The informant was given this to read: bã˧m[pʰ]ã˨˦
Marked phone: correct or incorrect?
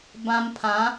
correct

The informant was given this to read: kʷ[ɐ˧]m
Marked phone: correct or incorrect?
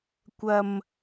correct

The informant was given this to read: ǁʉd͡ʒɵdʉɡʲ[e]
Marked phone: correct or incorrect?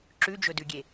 correct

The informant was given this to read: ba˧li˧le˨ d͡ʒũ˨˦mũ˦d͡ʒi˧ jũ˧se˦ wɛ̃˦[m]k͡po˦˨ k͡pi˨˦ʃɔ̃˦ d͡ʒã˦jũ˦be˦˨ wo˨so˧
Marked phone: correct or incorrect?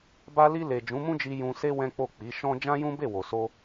incorrect: none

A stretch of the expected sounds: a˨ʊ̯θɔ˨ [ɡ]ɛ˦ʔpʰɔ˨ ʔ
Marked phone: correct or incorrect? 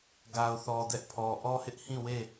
incorrect: d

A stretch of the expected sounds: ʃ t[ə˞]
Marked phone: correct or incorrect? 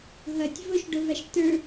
correct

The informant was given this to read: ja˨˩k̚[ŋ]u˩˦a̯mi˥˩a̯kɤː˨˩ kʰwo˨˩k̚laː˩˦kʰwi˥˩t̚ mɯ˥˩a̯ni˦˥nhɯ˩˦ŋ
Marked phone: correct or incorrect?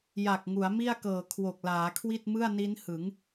correct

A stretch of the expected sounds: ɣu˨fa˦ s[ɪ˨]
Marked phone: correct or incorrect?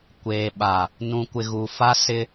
incorrect: ɪ˦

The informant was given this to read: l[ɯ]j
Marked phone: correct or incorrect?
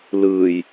correct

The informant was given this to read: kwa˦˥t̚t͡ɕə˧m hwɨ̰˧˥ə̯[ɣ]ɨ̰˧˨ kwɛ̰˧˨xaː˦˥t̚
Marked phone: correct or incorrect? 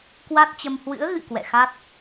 correct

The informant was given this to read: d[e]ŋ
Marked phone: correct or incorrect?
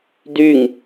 incorrect: y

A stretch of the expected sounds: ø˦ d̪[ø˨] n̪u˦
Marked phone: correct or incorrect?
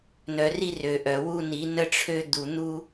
incorrect: u˨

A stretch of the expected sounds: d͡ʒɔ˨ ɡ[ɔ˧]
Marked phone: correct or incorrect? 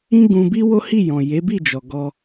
correct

